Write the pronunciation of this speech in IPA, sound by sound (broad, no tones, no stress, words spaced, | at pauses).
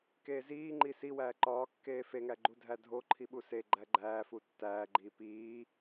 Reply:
keːziːŋ͡ǃi siwæː ǃɒːkːeː feŋæɡ͡ǃudʱæ dʱo ǃʰiɓuse ɡ͡ǃæɡ͡ǃæːfu tːæːɡ͡ǃiː piː